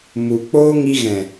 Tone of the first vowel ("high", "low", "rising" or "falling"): low